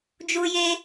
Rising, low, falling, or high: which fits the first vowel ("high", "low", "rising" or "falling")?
high